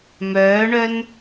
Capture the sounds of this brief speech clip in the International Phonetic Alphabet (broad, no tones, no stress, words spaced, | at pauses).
mœːɳœn